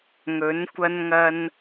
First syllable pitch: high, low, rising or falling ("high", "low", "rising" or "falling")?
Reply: rising